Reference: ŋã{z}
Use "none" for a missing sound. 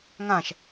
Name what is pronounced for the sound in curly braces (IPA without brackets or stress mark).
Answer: ʃ